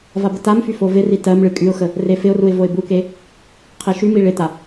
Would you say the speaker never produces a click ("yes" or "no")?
yes